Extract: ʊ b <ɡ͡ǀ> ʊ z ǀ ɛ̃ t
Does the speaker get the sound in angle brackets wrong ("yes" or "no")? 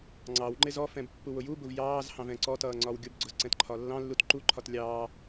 no